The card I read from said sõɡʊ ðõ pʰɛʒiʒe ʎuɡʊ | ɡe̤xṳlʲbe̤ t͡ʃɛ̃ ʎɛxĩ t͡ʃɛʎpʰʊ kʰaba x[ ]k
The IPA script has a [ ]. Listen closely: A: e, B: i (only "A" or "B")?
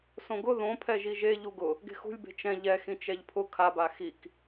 B